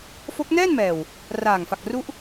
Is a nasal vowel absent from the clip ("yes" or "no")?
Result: yes